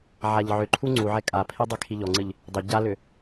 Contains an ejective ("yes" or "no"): yes